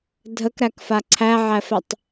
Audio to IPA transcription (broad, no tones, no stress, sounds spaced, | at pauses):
dʱ ə k ɾ æ k f a ǀʰ æ ʕ æ f ɛ tˤ